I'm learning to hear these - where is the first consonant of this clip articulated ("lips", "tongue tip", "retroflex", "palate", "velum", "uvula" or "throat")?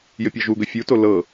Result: palate